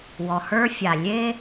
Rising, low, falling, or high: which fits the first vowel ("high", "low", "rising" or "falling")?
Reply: low